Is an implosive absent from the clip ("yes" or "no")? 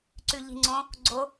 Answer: yes